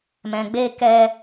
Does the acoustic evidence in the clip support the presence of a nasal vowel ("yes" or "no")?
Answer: yes